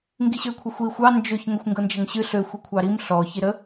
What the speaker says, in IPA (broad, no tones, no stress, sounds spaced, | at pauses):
ŋ ɡ i ɕ ø kʷʰ ɑ xʷ i xʷ ɑ n d͡ʒ ø ç ŋ ə xʷ ŋ ɡ ɤ n d͡ʒ ə ŋ ɕ ɨ ɬ ø xʷ i kʷʰ ɑ ɾ i m ɬ ɔ ç i ɾ ə